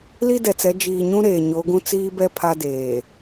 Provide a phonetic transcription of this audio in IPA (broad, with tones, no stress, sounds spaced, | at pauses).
l i˦ d ɛ˨ t͡s ɛ˨˦ d͡ʒ iː˨ ɲ ũ˦ ɾ eː˨ ɲ o˨˦ ɡ ũ˦ t͡s iː˦ b ɛ˦ pʰ a˦ d eː˨